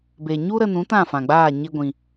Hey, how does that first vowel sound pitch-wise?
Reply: low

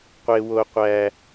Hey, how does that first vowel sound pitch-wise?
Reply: high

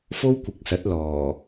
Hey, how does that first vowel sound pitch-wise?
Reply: high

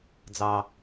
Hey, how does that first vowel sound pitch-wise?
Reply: low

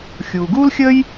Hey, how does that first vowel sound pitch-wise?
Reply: low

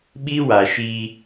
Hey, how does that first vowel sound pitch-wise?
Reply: high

